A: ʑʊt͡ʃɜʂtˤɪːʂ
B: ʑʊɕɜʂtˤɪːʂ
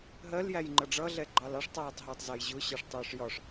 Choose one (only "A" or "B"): B